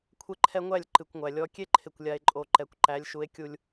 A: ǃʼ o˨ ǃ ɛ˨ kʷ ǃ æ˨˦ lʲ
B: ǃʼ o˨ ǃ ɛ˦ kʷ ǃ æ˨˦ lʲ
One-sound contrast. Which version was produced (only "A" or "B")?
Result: A